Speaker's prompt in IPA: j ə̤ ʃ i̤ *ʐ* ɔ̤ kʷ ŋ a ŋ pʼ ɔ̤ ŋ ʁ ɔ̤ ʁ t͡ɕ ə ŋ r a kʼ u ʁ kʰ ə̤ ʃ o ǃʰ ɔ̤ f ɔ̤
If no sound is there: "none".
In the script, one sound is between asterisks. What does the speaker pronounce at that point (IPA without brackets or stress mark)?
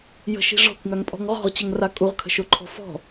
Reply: ʐ